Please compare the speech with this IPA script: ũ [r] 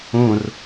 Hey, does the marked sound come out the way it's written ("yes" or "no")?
yes